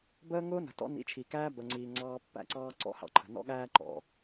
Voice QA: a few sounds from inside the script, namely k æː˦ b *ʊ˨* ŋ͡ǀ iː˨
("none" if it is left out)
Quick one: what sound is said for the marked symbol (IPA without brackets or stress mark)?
ə˨